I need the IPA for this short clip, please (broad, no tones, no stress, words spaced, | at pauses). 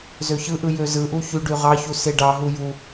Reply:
zøçɯʔɯ jøzɯʔu çyɖy ʁɑçu seɖɑɦu ju